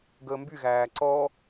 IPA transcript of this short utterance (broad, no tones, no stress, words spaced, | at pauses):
ɡəːmbyɣæː ǀɔ